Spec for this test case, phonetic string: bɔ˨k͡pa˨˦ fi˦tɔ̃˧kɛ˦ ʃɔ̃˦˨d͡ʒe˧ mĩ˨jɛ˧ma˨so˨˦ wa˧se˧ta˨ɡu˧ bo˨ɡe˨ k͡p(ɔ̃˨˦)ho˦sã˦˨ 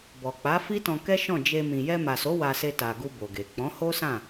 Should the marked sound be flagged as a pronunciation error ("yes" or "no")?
no